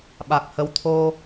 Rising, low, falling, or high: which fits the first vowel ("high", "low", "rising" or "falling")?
low